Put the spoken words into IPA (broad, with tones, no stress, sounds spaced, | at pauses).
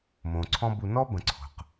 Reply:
m õ˨ ǀʰ ɔ̃˦ b u˧ n ɔ˦ b ə̃˨ ǀʰ o̤˨ q